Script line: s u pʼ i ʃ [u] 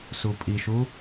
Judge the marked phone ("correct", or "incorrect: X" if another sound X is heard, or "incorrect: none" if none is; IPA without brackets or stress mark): correct